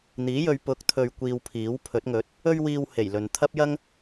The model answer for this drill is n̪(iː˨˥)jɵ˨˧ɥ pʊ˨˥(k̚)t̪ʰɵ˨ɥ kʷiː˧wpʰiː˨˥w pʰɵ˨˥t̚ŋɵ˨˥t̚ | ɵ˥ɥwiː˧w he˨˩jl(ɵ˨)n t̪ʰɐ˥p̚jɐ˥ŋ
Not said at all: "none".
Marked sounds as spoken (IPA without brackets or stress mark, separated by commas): iː˨˥, k̚, ɵ˨